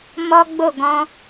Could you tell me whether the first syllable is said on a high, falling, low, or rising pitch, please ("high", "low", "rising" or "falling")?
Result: high